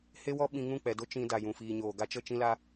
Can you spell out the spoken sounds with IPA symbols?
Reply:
h e˦ w ɔ˦ ɓ ĩ˧ ŋ ũ˦˨ k͡p ɛ˨ d o˦ t͡ʃ ĩ˧ d a˨ j ũ˨ f iː˨ ɲ oː˨ ɡ a˧ t͡ʃ ə˦˨ t͡ʃ ĩ˦ l a˦

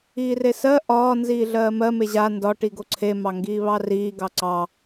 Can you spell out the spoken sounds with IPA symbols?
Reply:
iː r e s ɜ ʔ ɒː n z iː ɮ ɜː m ɜ m e ʑ a n d ɒ ʈ i ɡ o ǀʰ e m ɑ ŋ ɡ iː β ɑ r iː ɡ ɑ ǀ ɑ

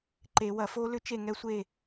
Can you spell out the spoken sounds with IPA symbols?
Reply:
ǃ e˨˩˦ w ɐ˩˥ f o˦˥ l ʏ˦˥ t͡ʃ e˥˨ ŋ ɛ˦˥ sʷ e˥˨

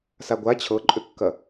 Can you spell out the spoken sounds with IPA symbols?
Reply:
s a ɡʷ a t͡ɕʰ ɤ ǃʼ ʏ kː ɐ

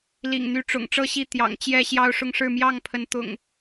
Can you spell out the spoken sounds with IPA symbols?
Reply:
l ḭ˨˩ ŋ n̪ y˨˦ ʈ͡ʂ ʊ̰˨˩ ŋ ʈ͡ʂ ɤ˥˨ ɕ i˥˨ t̪ j ɑ̰˨˩ ŋ t͡ɕ j ɛ˥˨ ɕ j ɑ˦ ʊ̯ ʂ ʊ˥˨ ŋ ʂ ɻ̩˥˨ m j ɑ˥˨ ŋ pʰ ə˨˦ n t̪ ʊ̰˨˩ ŋ

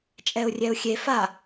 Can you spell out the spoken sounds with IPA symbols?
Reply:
t͡ʃʼ ɛ ʊ̯ rʲ ɛ ʊ̯ xʲ e f a

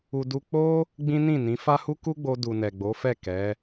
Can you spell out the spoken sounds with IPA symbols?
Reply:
u˧ d u˦ k͡p o˦ | ɡ͡b ĩ˦ n ĩ˦˨ n ĩ˨˦ f a˦ h u˦ k u˦ ɡ͡b o˧ d u˨ n ɛ˨ ɡ͡b o˨˦ f ɛ˦˨ k ɛ˨˦

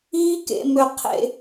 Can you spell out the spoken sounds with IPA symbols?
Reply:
iː˥ k ḛ˩˧ m ø˧ qʰ ḛ˧

